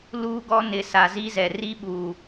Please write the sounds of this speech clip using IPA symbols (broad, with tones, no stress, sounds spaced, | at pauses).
l uː˦ ɡ ɔ˦ n ɪ˨ s a˨ z i˦ z ɛ˨ r i˦ ɓ uː˨